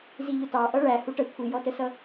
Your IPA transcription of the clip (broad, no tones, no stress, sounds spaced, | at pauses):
z i ʎ ʊ t ɑ ʔ ʌ ɭ æ h u ʈ ə kʷʰ i j ɔ t ə s ʌ